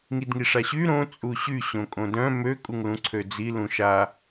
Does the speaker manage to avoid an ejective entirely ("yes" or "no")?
no